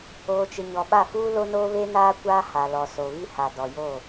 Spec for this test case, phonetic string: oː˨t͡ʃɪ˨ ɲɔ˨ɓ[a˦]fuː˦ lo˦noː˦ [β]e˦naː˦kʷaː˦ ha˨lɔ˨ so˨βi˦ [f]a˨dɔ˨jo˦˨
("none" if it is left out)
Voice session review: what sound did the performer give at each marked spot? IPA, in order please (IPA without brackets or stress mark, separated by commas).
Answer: a˦˨, β, h